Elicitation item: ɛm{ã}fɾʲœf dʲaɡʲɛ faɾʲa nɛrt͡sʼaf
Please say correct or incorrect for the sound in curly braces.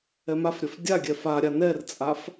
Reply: incorrect